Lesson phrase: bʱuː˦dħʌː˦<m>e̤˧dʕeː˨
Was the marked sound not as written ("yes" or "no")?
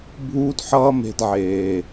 no